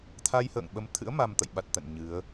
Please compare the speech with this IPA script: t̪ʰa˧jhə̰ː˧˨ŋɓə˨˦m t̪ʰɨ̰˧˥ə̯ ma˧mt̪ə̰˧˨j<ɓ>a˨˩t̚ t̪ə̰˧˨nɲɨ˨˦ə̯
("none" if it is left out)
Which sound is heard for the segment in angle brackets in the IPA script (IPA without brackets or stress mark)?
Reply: ɓ